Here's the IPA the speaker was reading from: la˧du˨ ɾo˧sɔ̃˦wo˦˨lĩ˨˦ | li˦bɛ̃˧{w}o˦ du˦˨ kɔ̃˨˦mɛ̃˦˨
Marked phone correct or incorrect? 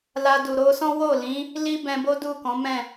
incorrect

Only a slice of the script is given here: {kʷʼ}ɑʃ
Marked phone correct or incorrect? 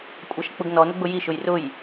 correct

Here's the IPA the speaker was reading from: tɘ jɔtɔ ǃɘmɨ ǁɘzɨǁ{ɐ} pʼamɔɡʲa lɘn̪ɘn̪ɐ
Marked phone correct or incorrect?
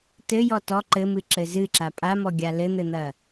incorrect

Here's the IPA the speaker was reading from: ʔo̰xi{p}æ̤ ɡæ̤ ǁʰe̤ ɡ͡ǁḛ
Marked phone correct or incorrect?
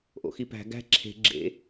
correct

